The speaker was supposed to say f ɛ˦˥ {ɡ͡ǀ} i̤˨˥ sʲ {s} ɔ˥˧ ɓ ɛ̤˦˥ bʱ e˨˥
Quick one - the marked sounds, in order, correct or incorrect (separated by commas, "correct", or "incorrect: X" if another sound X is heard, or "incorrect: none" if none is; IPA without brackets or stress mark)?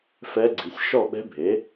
correct, incorrect: ʃ